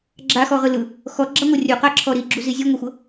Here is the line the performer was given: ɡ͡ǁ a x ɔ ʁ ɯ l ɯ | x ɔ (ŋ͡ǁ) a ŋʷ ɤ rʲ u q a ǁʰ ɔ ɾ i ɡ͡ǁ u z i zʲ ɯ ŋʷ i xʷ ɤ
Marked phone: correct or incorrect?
incorrect